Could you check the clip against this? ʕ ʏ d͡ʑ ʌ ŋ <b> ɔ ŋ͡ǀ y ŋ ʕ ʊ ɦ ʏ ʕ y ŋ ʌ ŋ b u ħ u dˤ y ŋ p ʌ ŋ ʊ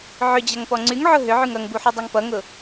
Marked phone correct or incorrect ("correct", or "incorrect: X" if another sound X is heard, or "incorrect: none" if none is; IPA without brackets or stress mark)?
incorrect: p